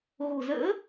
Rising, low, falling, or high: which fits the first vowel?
low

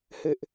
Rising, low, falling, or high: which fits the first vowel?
high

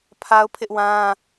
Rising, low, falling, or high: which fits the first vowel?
high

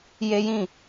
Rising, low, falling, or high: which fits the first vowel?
high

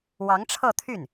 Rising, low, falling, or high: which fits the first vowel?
rising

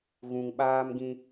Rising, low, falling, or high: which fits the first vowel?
low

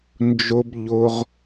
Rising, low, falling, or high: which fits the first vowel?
high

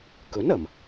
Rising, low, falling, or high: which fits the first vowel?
rising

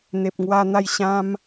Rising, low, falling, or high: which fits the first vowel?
low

